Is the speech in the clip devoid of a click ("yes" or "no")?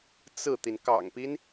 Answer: yes